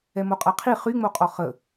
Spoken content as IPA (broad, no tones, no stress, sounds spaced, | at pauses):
ɛ m o qʼ a qʰ i χ y ŋ͡m o qʼ ɔ χ ə